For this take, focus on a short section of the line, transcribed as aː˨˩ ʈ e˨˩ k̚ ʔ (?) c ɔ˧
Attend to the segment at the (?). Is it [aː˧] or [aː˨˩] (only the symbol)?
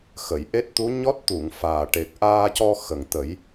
aː˧